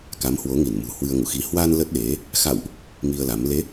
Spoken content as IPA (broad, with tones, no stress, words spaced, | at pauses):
ka˨˦mhwo˨˦ ŋi˧˩nmṳ˨˩ hwɨ˧ə̯ŋṵ˧˨xi˧ hwa˧n lə˦˥t̚ɗe˨˦ | xa̰˧˨wʔ | ŋi˧ə̯la˨˦m le˨˦